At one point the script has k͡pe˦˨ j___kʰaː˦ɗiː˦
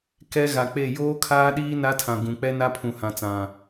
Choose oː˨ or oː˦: oː˦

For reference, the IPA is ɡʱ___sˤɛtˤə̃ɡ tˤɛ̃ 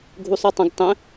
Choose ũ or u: u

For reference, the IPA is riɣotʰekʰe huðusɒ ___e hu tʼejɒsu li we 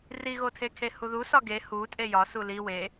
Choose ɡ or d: ɡ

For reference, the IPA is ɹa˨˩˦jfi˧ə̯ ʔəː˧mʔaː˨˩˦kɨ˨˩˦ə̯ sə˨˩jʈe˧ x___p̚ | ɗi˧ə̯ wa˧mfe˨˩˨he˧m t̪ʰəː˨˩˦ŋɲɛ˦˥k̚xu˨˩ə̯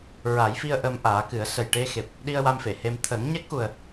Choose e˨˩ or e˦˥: e˨˩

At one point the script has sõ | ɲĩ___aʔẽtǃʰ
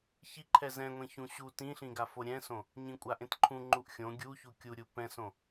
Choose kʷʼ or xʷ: kʷʼ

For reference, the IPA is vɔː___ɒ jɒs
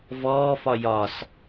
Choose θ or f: f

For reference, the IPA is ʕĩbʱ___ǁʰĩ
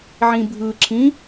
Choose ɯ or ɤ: ɯ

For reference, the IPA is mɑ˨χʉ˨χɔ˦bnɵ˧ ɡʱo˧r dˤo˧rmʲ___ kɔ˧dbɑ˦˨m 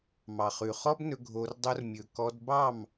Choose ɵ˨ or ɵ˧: ɵ˨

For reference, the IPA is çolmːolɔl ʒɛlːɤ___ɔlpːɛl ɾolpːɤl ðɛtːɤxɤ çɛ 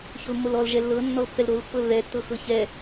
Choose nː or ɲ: nː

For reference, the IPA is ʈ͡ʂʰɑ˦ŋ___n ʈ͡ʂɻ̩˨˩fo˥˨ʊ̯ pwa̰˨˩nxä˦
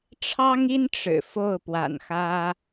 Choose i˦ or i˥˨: i˦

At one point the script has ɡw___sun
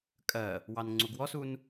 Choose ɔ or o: ɔ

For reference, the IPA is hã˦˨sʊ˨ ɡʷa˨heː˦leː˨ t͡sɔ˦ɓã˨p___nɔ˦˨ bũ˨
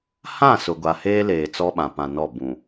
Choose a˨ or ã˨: ã˨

